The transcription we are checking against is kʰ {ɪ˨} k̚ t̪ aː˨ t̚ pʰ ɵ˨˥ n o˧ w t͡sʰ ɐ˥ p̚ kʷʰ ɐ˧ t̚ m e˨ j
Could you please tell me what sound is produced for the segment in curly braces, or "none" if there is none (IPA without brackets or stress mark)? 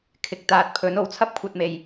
ɪ˨